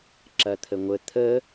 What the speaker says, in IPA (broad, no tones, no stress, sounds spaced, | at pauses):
ǁ ɐ t̪ʰ ə ŋʷ ə t̪ʰ ə